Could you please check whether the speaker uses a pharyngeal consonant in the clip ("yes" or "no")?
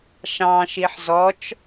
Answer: yes